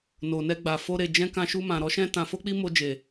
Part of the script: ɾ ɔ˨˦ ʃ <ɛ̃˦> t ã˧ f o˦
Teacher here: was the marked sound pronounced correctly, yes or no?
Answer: yes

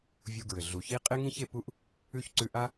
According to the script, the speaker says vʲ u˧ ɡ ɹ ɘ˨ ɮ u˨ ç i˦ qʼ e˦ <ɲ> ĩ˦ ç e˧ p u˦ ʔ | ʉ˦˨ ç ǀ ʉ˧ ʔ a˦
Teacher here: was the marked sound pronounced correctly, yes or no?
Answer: no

